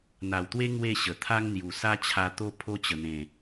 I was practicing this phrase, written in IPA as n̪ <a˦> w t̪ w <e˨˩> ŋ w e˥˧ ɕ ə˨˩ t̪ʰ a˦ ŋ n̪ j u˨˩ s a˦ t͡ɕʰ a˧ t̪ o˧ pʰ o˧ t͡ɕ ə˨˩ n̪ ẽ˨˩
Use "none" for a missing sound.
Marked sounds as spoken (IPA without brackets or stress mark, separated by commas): a˨˩, e˦